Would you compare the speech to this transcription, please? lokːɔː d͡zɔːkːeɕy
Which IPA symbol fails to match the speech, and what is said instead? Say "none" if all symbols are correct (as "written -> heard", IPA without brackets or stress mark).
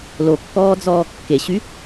none